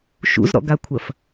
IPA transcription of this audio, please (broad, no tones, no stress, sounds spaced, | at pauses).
ʃ ṵ z ɾ ɔ̰ ɡ a kʷʰ ɐ f